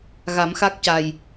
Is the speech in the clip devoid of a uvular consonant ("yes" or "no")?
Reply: yes